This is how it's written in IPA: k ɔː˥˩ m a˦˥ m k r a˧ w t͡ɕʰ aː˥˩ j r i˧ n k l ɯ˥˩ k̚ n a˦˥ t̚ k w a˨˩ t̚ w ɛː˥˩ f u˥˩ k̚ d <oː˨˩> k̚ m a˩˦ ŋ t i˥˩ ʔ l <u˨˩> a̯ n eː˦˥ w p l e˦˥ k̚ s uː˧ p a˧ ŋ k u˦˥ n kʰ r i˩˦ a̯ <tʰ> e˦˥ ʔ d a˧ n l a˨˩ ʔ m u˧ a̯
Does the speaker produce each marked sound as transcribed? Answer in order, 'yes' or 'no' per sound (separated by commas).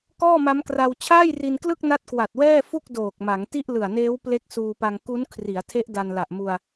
yes, no, yes